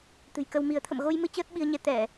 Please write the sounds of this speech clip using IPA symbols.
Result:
t̪ ɨ̤˨˩ j k ə˧ w m i˨˦ ə̯ t̪ʰ ə̰˧˨ m ɣ o˧ j m ɨ˧ t͡ɕ əː˦˥ t̚ ɓ i˧ ə̯ ɲ ɛ˧ t̪ ɛ˧˩˨

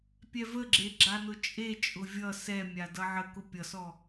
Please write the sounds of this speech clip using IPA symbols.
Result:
pʲ ɛ v ə ɡ͡ǁ e ɡ͡ǁ a n ʊ t͡ʃʼ e t͡ʃʼ ʊ vʲ ʌ s ɛ mʲ a d ʌ ʕ ə k ʊ pʲ ʌ s ɔ

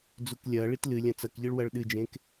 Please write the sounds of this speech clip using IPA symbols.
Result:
d͡z u k lʲ ɐ ɭ i t l ɨ lʲ ɐ̃ t͡s ɐ k ʎ ɨ ɭ w ɐ ɭ ɗ ɨ d͡ʒ ẽ k

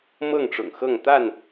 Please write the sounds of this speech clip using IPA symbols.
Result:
m ɤ˥˨ ŋ ʈ͡ʂ ʊ̰˨˩ ŋ x ɤ˥˨ ŋ t̪ a˥˨ n

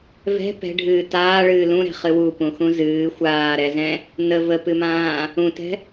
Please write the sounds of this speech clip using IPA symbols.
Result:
v ɛ̤ p ɛ̤ ɖʱ ɨː t aː ɭ ɨː l ũ ɾ ɛ̤ χ ɨ w u p ũ x ũ z ɨː xʷ aː ɾ ɛ z ɛ̃ | n ə v ə p ɨ m ãː | ũ t ɛ̤

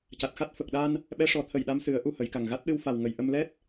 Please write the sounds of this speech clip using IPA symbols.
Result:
c a˨˩ t̚ x a˦˥ t̚ f ə˨˩ k̚ ɗ a˧ n | ɓ ɛ˧˥ ʂ ɔ˨˩˦ t̪ʰ ə˨˩ j ɗ a˧˥ m s ɨ˨˩˦ ə̯ ʔ u˧ h ə˨˩˦ j k a˨˩ ŋ ɣ a˦˥ t̚ ɗ ɨ˧ w f a˨˩ w ŋ ə˨˩˨ j ʔ ə˧ m l ɛ˦˥ t̚

